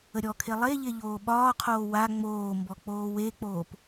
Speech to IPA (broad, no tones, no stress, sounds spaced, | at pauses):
ə ɾʲ ɔ kʰ e lˠ e ʎ e ʎ oː ɓ ɒː qʰ oː w a ŋ͡m oː m b ɔ k͡p oː w e k͡p oː p